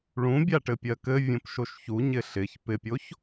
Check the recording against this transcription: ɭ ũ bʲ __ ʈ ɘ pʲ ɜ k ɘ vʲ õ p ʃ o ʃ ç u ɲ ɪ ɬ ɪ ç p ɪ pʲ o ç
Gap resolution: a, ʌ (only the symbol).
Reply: a